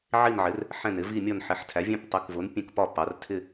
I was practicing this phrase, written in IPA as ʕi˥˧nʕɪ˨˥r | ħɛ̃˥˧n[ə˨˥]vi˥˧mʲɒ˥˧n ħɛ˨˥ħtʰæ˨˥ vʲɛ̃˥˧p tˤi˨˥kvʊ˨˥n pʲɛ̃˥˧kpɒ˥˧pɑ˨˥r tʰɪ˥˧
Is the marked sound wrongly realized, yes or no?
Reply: yes